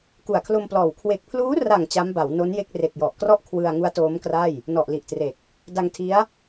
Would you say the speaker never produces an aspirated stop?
no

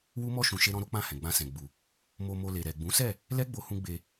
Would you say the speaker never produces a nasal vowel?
no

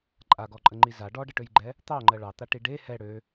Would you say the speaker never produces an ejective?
no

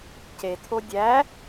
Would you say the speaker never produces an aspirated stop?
no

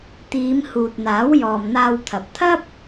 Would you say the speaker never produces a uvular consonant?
yes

